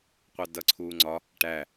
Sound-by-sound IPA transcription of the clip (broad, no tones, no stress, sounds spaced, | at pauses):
qʷ ɑ d ʌ ǀʰ uː ŋ͡ǀ ɒ | ʈ æ